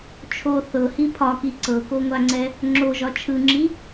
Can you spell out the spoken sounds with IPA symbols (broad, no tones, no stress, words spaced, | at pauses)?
t͡ʃʰo θɤhi pʰɒki ǀɤkoŋʷaŋ͡ǀɛ | ŋ͡ǁoʒɒ t͡ʃʰɯŋ͡ǁi